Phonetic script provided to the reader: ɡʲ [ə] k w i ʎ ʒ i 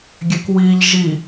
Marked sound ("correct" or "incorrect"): incorrect